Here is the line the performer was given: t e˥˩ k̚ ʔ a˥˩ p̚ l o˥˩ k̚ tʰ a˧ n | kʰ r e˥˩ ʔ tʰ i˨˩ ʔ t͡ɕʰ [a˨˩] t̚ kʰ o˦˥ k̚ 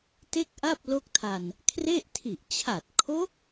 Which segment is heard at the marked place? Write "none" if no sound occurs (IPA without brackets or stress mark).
a˨˩